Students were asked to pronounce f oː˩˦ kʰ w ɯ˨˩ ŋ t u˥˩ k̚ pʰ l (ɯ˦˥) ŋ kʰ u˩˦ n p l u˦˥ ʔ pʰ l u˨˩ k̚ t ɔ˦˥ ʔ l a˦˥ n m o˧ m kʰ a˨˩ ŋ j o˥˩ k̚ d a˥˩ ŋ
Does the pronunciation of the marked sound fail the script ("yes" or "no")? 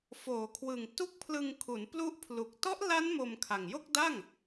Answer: yes